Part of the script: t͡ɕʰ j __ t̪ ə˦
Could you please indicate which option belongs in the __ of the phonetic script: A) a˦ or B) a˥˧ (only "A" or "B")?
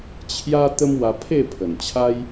A